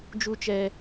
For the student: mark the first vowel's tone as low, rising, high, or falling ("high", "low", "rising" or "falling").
high